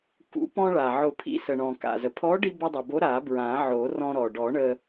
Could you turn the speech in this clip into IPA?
k ṵ˨˩˦ p ɔ̃˧ ɭ a˩ ʕ ʊ˨˩˦ pʰ ḭ˨˥ s ə˩ ɳ ɔ̃˩ k a̰˩ z ə˩ pʰ ɔ˨˥ ɖ i˧ b ə˧ dˤ i˩ b o˨˥ ɾ a˨˩˦ b ɹ ã˨˩˦ ʕ o˨˩˦ r ɔ̃˧ ɾ ɔ˩ ɖ ɔ˨˩˦ ɳ ə˧

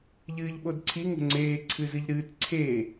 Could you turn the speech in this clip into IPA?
ʎ ɨː ʎ ɓ o d ǀʰ i ŋ ə̤ ŋ͡ǀ eː ǀʰ ɨ z ɨ ʎ ɾ ɨː t ǀʰ e

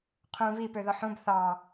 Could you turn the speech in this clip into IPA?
qʰ ũ β i p ø ð ɔ ħ ũ b θ ɑ

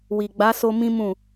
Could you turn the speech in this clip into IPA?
w i˨ ɡ͡b a˨˦ s o˧ m ĩ˦ m ũ˦˨

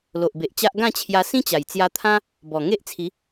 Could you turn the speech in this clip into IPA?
l o˨ ʔ b e˨ ʔ t͡ɕ a˦ ʔ ɡ ã˥˧ t͡ɕʰ j a˧ s ĩ˦ t͡ɕ a˨˩ j t͡s j a˧ t̪ʰ ã˦ | b ɔ˨˩ ŋ e˦ ʔ t͡sʰ i˨˦

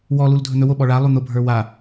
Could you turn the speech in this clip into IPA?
w ɔ l u l dʱ ɵ n̪ ɵ w o ɓ ɔ ɭ a lˠ u n̪ ʊ bʱ ə˞ w a

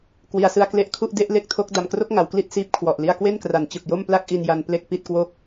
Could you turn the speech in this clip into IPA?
k w i˩˦ a̯ s ɯ˧ a̯ k l e˦˥ ʔ kʰ u˥˩ ʔ d e˥˩ ʔ l e˥˩ k̚ tʰ o˦˥ k̚ d a˨˩ m k r o˥˩ k̚ ŋ a˩˦ w k l i˥˩ t̚ s iː˦˥ p̚ kʰ w ɔ˨˩ ʔ l i˧ a̯ k w e˥˩ n k r a˩˦ n t͡ɕ ɯ˨˩ k̚ j o˥˩ m p l a˥˩ k̚ ʔ i˧ n j a˦˥ n p l e˥˩ k̚ p i˥˩ t̚ k w o˥˩ k̚

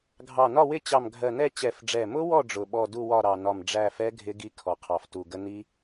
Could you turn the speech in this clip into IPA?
ɡʱ ɑ˨˩ n ɒ˦˨ w ɪ˦˨ t͡ɕ ɑ˨˩ m ɡʱ ɜ˨˩ n ɛ˦˨ t͡ɕ ɛ˨˩ f ɖ͡ʐ ɛ˨˩ m ʊ˦˥ w ɔ˦˨ ɖ͡ʐ ʊ˨˩ ɓ ɔ˦˨ d u˦˨ w ɒ˦˨ ɾ ɑ˨˩ n ɒ˨˩ m ɖ͡ʐ æ˦˨ f ɛ˦˥ ɡʱ ɪ˦˥ ɡ i˦˥ kʰ ɔ˨˩ qʰ ɑ˨˩ f t u˨˩ ɡ ə˦˥ n i˦˥

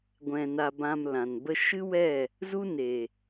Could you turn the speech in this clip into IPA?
ɡʷ ɛ̃˧ n a˧ b ã˧ m l ã˨ n b ə˦ ʃ ɨ˦ w ɛ˦˨ | z u˦ n e˨

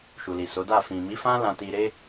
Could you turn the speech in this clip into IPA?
ʃ u˨ l i˨ s o˨˦ d a˦˨ f ĩ˨ m i˨˦ f ã˦ l ã˧ t i˧ ɾ e˦

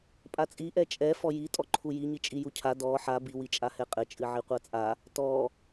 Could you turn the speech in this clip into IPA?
pʼ a t͡sʼ i ʔ ɛ t͡ʃʼ ɛ f ɔ j i tʼ ɔ ǃʰ u j i ɲ i t͡ʃʼ i j u cʰ a d ɔ ħ a b i w i t͡ʃʼ a h ɛ qʼ ɘ t͡ʃʼ ɨ ʕ i qʷ a t͡sʼ a | t ɔ

